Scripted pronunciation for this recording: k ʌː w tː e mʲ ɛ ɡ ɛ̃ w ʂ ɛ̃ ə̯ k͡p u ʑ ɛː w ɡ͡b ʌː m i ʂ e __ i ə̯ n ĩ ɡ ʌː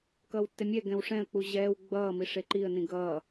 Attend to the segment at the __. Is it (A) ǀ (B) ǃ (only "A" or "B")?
B